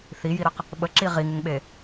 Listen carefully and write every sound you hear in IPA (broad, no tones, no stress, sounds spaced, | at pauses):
θ i j i ɾ ə q | ɓ ə ǁ i ʁ i ŋ ɪ ŋ ɓ e